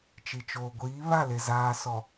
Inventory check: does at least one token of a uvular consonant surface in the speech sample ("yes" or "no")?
no